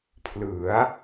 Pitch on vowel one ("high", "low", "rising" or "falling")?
rising